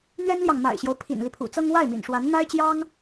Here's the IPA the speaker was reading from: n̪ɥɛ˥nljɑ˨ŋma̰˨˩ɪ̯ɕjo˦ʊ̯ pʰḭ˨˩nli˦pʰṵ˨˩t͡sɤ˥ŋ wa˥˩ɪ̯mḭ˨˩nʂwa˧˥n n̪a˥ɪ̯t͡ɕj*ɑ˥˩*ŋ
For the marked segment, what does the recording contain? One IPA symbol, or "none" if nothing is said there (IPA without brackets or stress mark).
ɑ˥